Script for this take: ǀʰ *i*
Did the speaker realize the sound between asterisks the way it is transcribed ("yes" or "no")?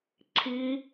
yes